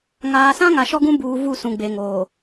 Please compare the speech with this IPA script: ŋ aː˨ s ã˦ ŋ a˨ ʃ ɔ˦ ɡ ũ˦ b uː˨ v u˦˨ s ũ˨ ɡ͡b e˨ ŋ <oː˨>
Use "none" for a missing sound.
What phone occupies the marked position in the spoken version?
oː˨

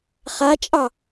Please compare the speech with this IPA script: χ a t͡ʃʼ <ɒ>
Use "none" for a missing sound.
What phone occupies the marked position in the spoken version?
ɑ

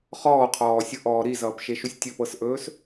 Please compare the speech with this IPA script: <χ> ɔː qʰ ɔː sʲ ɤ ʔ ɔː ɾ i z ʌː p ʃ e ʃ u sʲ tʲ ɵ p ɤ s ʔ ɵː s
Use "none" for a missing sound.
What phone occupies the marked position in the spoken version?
χ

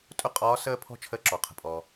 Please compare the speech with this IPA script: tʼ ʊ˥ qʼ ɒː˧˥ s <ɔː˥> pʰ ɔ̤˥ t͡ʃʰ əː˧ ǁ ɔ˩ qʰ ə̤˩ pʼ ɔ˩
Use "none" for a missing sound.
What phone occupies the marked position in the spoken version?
əː˥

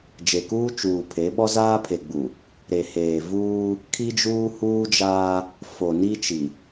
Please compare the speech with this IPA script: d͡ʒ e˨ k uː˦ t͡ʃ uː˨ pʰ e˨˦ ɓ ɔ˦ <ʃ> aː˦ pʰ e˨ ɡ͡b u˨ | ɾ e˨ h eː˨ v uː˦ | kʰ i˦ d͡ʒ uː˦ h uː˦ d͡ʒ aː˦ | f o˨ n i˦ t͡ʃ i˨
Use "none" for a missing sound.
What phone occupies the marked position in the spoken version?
z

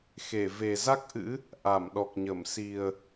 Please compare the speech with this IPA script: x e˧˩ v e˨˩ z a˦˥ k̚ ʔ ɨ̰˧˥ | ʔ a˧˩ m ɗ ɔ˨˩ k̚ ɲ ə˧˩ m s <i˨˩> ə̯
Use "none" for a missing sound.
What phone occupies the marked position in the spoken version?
i˨˩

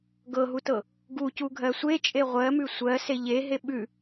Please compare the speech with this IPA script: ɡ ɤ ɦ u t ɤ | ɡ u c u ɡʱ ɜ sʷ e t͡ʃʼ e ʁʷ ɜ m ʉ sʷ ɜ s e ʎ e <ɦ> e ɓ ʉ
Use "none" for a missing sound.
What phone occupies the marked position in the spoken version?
ɦ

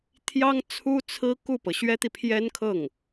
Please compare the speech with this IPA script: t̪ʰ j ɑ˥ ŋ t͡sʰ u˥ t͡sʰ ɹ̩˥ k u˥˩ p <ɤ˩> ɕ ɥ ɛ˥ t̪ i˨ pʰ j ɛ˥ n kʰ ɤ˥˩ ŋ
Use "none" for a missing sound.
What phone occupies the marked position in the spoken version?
ɤ˩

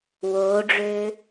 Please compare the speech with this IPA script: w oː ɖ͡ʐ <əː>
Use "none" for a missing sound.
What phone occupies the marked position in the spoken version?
øː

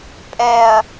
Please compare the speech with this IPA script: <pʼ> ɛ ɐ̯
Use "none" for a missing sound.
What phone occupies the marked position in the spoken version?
pʼ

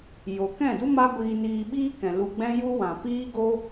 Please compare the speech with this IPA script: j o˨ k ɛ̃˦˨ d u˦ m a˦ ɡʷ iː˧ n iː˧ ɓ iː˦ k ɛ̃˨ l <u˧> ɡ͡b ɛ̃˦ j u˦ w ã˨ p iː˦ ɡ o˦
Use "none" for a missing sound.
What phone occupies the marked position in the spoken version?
u˧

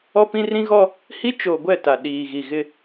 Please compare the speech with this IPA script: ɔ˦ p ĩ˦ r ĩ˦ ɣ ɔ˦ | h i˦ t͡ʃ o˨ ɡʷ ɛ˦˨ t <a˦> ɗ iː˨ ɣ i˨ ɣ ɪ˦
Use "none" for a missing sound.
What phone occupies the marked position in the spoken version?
a˨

